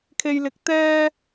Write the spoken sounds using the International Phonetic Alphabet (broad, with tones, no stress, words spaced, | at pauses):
kʰe˧jlɪ˨˥k̚ t̪ɛː˥